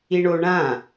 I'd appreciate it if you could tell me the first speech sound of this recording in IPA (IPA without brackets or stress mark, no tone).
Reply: i